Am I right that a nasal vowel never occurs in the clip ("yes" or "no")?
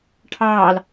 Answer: yes